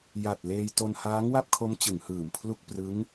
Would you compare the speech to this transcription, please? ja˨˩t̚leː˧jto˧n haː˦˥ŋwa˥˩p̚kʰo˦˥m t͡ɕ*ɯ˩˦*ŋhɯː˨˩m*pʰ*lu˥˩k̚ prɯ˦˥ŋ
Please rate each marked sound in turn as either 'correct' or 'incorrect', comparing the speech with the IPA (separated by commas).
correct, correct